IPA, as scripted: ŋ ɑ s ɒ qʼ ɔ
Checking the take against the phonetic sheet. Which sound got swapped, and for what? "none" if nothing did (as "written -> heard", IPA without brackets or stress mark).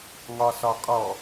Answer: ɑ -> ɒ